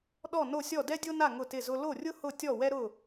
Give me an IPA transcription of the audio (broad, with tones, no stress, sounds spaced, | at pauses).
ɗ ɔ˥˨ n o˥˨ sʲ ɔ˥˨ d ɛ˥ dʲ o˥ n a˥˨ ŋ ʊ˥˨ t ɪ˥˨ z ʊ˥ l o˥˨ rʲ ʊ˥ h ʊ˥˨ tʲ ɔ˥˨ w ɛ˥ ɾ ʊ˥˨